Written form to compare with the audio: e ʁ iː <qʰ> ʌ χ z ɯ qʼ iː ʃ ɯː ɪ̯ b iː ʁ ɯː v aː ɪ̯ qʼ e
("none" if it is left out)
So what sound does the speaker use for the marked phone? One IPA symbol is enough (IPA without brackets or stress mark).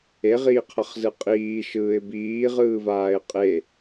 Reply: qʰ